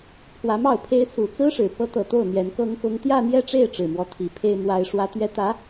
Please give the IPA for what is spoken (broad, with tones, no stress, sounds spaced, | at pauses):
pʰ w ä˧˥ m ɑ˥˩ ʊ̯ pʰ e˥ ɪ̯ s u˨˩ t͡s ɹ̩˥ ʂ ɻ̩˨˩ p ɤ˥ t̪ ɤ˨˩ t̪ o˥˩ ʊ̯ n̪ j ɛ˧˥ n k ɤ˥ ŋ k ʊ˥ ŋ t̪ j ä˥˧ n̪ j ɛ˥˧ ʈ͡ʂ e˥˩ ɪ̯ ʈ͡ʂ ɻ̩˨˩ m w ɔ˧˥ t̪ʰ i˨˩ pʰ e˥ ɪ̯ m w a˥ ɪ̯ ʂ w ä˥ t̪ ɥ ɛ˥ t̪ ä˧˥